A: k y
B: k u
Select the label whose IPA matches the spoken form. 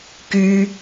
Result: A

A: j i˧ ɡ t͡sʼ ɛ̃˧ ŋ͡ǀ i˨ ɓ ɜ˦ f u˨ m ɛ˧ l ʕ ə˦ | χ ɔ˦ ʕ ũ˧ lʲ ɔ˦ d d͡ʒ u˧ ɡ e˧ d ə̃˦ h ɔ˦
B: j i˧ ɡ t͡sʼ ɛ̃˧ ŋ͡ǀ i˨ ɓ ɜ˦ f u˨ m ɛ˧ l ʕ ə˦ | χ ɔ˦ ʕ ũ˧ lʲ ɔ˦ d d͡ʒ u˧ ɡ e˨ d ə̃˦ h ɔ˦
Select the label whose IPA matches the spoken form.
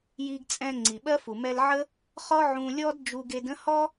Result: A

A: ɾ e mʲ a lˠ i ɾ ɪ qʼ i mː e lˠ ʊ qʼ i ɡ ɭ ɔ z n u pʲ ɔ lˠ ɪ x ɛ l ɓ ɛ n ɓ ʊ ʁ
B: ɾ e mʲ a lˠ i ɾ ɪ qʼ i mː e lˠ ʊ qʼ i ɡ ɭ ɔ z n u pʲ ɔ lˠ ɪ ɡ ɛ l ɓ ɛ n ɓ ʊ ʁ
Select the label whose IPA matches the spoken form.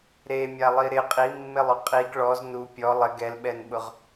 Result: B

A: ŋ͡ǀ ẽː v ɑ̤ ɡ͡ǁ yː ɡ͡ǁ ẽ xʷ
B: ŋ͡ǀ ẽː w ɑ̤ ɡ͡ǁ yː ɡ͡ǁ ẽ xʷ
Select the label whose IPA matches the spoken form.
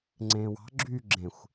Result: B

